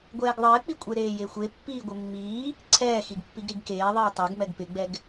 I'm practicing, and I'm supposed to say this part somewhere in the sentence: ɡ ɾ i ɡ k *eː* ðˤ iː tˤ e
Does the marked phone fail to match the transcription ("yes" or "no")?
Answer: no